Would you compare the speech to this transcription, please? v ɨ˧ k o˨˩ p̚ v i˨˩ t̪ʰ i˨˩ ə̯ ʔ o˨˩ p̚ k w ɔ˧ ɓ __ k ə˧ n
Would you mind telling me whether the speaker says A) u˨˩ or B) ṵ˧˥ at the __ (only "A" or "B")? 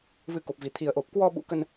B